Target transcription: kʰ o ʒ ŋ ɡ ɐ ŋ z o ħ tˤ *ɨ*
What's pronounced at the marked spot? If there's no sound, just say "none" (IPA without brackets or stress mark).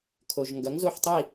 i